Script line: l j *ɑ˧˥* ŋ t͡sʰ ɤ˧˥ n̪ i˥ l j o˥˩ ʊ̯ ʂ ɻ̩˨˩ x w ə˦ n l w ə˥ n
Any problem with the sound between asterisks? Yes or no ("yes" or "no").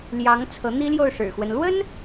no